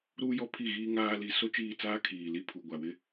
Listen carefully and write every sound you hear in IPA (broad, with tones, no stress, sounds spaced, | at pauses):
ɾ uː˦ j ɔ˦ pʰ i˦˨ ɣ iː˦ ŋ aː˦ l i˦ s o˦ t͡ʃ iː˦˨ t͡s aː˦ kʰ iː˨ l i˦ pʰ u˨ ɡʷ a˨ w ɪ˦